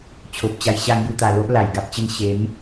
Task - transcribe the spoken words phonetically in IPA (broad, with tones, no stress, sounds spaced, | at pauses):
t͡ɕʰ o˨ p̚ t͡ɕ a˧ j ɕ a˥˧ ŋ j u˧ t̪ a˨˩ l o˦ ʔ l a˨˩ j ɡ a˦ p̚ t͡ɕ ə˥˧ n ɕ e˨˦ m